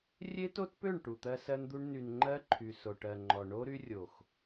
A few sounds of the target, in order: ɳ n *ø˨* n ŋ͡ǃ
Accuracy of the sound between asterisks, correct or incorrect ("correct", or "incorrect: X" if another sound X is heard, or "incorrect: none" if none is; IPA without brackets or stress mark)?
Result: incorrect: y˨